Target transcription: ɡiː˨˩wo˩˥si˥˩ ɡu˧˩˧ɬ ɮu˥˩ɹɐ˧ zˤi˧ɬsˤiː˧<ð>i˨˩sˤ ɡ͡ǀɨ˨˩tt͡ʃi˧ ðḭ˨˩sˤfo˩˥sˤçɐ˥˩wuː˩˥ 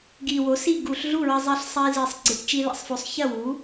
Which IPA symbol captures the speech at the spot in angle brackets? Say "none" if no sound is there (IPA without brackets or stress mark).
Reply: z